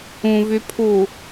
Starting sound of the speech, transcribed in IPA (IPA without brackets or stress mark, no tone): ũ